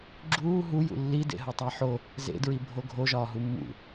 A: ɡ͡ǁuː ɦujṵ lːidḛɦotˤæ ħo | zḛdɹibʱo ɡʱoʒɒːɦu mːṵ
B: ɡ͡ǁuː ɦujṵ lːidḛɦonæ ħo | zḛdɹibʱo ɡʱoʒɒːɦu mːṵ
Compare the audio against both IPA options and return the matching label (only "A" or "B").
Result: A